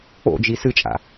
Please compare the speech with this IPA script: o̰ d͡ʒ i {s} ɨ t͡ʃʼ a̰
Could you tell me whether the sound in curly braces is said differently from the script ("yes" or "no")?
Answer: no